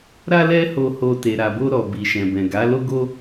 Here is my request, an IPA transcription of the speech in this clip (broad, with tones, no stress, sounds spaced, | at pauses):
ɾ a˦ l ɛ˦ h o˧ h o˧ t e˨ ɾ a˨ b o˧ ɾ ɔ˨ b i˨ ʃ ɛ̃˨ b ɛ̃˨ ɡ a˨˦ l o˦ ɡ o˦